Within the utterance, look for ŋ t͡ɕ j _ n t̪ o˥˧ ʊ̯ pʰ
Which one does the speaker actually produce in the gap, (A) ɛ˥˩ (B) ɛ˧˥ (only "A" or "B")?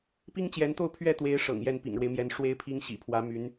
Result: B